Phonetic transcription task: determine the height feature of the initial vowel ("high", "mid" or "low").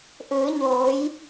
high